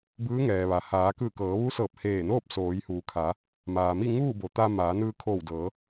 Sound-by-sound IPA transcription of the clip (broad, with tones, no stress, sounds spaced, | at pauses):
b ɯː˧˥ ŋ ɛː˩ ʋ a˩ h aː˩˧ k ɯː˧˩ k ɤː˩˧ ʋ u˧˥ s ɤː˧˩ p̚ h eː˧˩ n oː˥˨ p̚ s oː˩˧ j h uː˩˧ kʰ a˩˧ | m aː˩ m i˥˨ ŋ uː˥˨ b o˩ t̪ a˧ m aː˩˧ n ɯː˧ kʰ oː˧˩ w d ɤː˩˧